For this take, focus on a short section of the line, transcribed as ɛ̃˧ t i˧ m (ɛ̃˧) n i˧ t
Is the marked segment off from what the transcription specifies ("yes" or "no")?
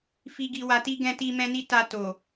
no